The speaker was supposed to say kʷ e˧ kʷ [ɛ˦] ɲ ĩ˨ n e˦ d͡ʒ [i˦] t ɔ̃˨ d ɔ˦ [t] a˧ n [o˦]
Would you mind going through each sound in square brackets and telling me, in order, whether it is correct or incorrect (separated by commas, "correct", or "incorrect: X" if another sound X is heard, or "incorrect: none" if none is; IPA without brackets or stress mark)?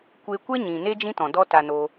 correct, incorrect: ĩ˦, correct, incorrect: o˧